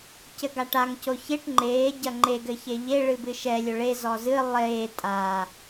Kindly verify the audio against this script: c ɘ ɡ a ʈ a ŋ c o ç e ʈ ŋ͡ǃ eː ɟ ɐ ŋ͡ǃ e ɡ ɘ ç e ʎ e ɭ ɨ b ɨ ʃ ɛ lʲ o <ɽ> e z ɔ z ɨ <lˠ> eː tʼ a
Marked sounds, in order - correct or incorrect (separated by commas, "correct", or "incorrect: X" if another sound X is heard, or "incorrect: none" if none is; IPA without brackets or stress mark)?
incorrect: ɭ, correct